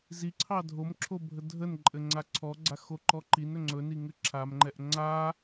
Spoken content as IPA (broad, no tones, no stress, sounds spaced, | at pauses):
z i ǀʰ ɑ dʱ o m ǁʰ o bʱ ə dʱ ə n ǃʼ ɘ ŋ͡ǀ a ǀʰ ɔ ɡ͡ǀ a x o ǃ ɔ ǃ i n ɵ ŋ͡ǀ ɵ n i ŋ ɘ ǁʰ a m ŋ͡ǃ ɛ ʔ ŋ͡ǀ a